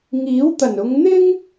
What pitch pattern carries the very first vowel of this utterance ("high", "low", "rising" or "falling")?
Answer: rising